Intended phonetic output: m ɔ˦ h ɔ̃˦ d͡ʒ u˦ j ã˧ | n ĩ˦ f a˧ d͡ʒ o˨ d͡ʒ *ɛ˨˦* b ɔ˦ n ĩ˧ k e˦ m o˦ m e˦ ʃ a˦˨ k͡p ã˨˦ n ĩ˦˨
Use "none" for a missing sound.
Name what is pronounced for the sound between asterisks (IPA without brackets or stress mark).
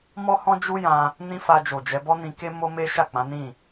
ɛ˨˦